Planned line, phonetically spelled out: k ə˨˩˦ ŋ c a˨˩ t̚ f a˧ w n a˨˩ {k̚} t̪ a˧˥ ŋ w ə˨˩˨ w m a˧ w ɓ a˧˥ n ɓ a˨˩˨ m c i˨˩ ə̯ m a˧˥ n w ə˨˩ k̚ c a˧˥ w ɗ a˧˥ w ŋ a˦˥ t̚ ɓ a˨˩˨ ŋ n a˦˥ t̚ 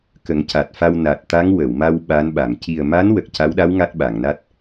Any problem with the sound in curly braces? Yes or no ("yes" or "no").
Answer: yes